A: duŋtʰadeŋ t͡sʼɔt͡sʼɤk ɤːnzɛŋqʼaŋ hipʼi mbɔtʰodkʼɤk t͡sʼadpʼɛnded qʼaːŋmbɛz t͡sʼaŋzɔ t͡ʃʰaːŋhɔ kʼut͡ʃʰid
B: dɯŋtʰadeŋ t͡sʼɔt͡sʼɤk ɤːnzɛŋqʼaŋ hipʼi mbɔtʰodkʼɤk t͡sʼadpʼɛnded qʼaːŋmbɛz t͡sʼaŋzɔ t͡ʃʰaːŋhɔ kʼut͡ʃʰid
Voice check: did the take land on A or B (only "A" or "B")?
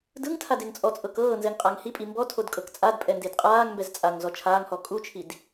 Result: B